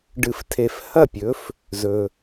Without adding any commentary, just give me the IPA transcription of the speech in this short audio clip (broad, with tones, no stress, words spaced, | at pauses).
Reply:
ɖɨ˧˩ftʰe˧˩f hɐ˥˩pʲɵ˨˥f | zɵ˩